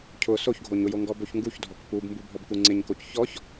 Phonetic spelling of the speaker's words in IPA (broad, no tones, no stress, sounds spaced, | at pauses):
cʰ ʊ s o ç ɡʱ o ɲ ʊ j o ŋ ɡ ɔ b o ç ŋ ɡ u ç dʱ ɔ k p u b m b u bʱ ɔ b k u ŋ͡ǀ ɪ ɲ k o c ç ɔ ç